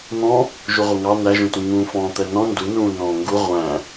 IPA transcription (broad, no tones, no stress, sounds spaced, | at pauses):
n̪ ɔ̃ | ʒ u ʁʷ ɪ ŋ ɑ n æ ʒ ũ t ũ ŋ ũː f ɔ̃ː t̪ ɛ n ɔ̃ n d u n ũː n ɔ̃ː ŋ ɡ u ʁʷ æ̃